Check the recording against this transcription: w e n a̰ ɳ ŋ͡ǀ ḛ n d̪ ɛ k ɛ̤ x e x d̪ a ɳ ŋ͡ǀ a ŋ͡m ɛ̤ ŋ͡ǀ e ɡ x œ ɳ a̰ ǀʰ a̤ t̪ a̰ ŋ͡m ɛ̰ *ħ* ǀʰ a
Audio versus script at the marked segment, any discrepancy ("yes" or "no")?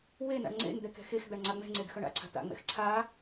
yes